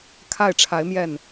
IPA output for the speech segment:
kʰa˥˩ɪ̯ʈ͡ʂʰa˧˥ɪ̯mjɛ˥˩n

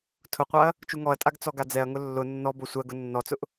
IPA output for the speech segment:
tʰʊqʷaɐ̯ | t͡ʃuŋɔɐ̯tʼaɡ t͡sɔɡad͡zɛɐ̯ŋʊ lːʊ nːɔ bosʷɜɡʊ nːɔt͡sʊʔ

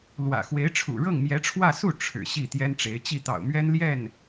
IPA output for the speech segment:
lwä̰˨˩xwe˧˥ɪ̯ ʈ͡ʂʰṵ˨˩ɻɤ˥˩ŋmjɛ˧˥ʈ͡ʂʰwä˥˧ su˥˩ ʈ͡ʂʰɻ̩˨˩ ɕi˥˩t̪jɛ˥nʈ͡ʂe˧˥ɪ̯ t͡ɕi˥˩t̪ɑ̰˨˩ʊ̯mɥɛ˥n ljɛ˥˩n

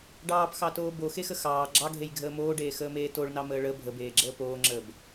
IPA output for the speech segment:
ɖɑːpxɑtoː boxexə xɑː ɡ͡ǁɑɡʱejɡʱəː moːɖeːxəːmeː toɭnɑməː ɭə bʱəbeːɡ͡ǁəː poːŋ͡ǁəːb

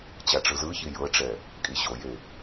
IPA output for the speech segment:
t͡ɕaʈ͡ʂɯzɯçi jɤʈ͡ʂɛ | kʼiɕoje

